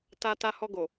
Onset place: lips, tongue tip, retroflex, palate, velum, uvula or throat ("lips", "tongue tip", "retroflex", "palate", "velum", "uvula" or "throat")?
tongue tip